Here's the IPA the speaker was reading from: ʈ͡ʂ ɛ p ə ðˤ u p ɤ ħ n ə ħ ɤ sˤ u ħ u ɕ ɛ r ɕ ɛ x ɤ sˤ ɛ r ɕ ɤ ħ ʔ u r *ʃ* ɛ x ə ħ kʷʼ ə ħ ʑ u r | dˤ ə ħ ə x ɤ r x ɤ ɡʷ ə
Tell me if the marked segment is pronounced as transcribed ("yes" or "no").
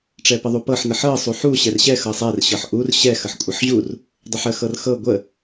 no